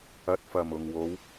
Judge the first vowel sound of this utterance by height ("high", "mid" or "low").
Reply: low